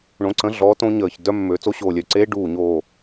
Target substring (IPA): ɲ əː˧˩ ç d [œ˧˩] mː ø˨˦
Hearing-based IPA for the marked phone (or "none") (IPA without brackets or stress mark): œ˦˥